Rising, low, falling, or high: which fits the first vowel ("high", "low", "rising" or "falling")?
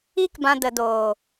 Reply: high